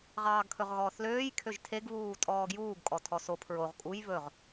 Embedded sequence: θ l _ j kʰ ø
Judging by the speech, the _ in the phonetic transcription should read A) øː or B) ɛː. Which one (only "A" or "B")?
A